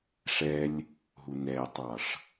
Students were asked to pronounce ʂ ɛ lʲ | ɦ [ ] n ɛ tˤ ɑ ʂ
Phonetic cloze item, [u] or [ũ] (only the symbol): u